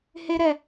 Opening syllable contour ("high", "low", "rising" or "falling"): high